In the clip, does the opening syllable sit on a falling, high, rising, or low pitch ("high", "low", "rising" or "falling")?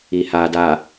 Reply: low